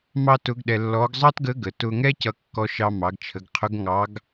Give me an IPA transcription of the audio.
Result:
m ɑ˥ t ʊ˧˥ ɡ ɗ ɛ˧ lː ɔ˧˥ ɡ zˤ ɑ˥ t ɡ ə˧˥ ɡ ə˩˧ t ʊ˧ ŋ ɛ˥ c ʌ˧ kː ɔ˧ ʃ ɑ˧ m ɑ˩˧ ɡ t͡ʃʰ ə˩˧ ɡ qʰ ʊ˧˥ ɡ ŋ ɑ˧˥ ɡ

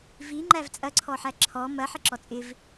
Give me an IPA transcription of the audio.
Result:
v i ŋ͡ǃ æ v t͡sʼ ɐ ǀʰ ɔ ħ æ ǁʰ ɔ m ɐ ħ ɪ ǁ ɔ t͡sʼ ɪ v

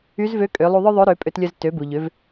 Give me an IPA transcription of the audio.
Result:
y˧˥ z v ø˧˥ kʼ ø˩˧ lˠ u˧ ðˤ œ˥ ðˤ ø˧˥ ɾ ø˩˧ pʼ ø˧ t lʲ œ˧ z t ø˩˧ b u˩ ʎ ø˩˧ v

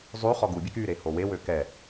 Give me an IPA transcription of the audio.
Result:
zˤ y χ ɔ ɡ u bʲ e k y ɾ e h o w e w ø k ɛ

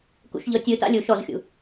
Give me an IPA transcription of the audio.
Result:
k ṵ ʃ ʎ ɤ tʲ ɯ t a̰ lʲ u ʃ ɔ z xʲ ṵ

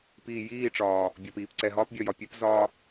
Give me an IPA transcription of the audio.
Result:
p iː˨ j iː˦˨ ʈ͡ʂ ɒː˨ | bʲ ɒ˨ p iː˨ p ǀ ɛ˨ ɦ ɒː˦ p bʲ ɒ˨ j ɒ˨ pʲ ɛ˦ p z ɒː˦

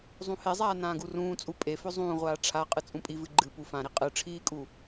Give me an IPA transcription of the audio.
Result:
zˤ ũ h e zˤ aː n ãː ɡ u r ũː t͡sʼ u pʼ e f ɵ zˤ ũː ʁʷ aː ʈ͡ʂʰ a qʼ ɨ t͡sʼ ũ pʼ i v ɨ ɡ͡ǃ ɨ p u f ã ɾ i qʼ ɨ ʈ͡ʂʰ iː kʼ u

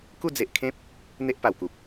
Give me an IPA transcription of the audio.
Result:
k u˥˧ d͡z e˨ ʔ kʰ ẽ˦ p̚ | n̪ e˦ ʔ p a˨˩ w k u˨ p̚

